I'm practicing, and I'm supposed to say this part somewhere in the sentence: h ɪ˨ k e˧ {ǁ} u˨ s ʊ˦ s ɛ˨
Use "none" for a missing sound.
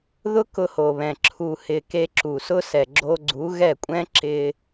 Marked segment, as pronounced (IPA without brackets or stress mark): ǁ